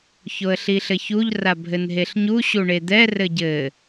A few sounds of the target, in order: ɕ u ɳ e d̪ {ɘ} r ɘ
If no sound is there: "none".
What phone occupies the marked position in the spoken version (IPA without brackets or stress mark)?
ɛ